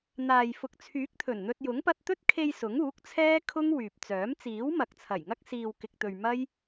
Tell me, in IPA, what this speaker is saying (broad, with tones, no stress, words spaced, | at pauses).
n̪aː˨j fʊ˨k̚t͡sʰyː˨˥k̚t̪ʰɵ˨˩n n̪ɵ˧t̚jʊ˨˥ŋ pɐ˧t̚t̪ɵ˥t̚kʰe˧j sʊ˨˥ŋuː˨˥k̚t͡sʰɛː˥ kʰʊ˥ŋwyː˨p̚t͡sœː˨˥m t͡siː˨˥wmɐ˨k̚t͡sʰɐ˨˩jŋɐ˥k̚ siː˧w kɪ˧k̚t̪ɵ˧ɥ mɐ˥j